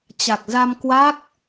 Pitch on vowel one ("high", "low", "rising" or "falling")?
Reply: low